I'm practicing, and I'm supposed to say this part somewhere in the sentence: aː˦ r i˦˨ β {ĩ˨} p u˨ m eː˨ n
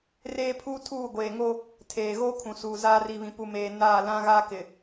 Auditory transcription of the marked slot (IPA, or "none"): ĩ˨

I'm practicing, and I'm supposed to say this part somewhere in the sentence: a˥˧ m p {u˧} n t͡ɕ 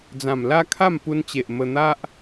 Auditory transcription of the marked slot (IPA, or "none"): u˧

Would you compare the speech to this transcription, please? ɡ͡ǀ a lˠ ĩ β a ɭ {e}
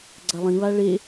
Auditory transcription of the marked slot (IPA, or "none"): e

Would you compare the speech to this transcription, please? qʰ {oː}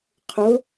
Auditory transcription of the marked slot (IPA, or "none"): o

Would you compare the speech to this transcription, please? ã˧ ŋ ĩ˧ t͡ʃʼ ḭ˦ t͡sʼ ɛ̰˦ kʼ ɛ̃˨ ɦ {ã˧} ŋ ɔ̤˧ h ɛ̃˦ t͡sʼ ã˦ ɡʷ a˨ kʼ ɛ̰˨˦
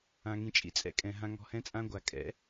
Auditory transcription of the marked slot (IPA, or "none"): ã˧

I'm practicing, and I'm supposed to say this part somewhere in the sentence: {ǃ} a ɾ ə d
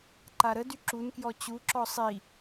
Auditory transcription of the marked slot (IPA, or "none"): ǃ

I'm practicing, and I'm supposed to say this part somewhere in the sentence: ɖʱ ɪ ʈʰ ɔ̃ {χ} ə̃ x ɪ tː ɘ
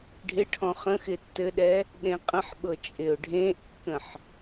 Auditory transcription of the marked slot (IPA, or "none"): χ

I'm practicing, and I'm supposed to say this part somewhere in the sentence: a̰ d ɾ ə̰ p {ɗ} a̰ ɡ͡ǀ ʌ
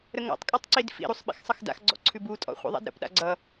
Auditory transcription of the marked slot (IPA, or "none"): ɗ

